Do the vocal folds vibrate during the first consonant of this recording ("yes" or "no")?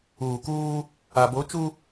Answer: no